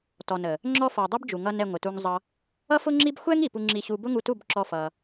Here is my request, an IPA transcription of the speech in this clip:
tɔ˨nə˨ | ŋ͡ǁɔ˦ fɔ˨dˤɛ˦bd͡ʒu˨ŋʌ˧n ɛ˧ŋʷɪ˨tu˧ŋzˤʌ˦ | ʌ˦fʊ˦ŋ͡ǁi˦b xʷɛ˦ŋ i˨pu˧ ŋ͡ǁi˦˨ɕu˦ bʊ˦ŋu˧tu˦˨bǁɔ˧ fʌ˧

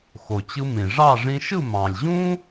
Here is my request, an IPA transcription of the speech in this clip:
xo˩t͡ɕɯ˧mĩ˩ ʐɑ˥˨ ʐĩ˧ʃɯ˥˨mɑ̃˩lʲ ʑũ˥

